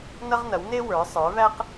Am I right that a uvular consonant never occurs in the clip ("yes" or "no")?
no